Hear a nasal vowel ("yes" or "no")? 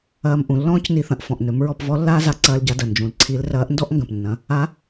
yes